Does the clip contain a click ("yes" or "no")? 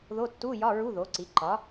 yes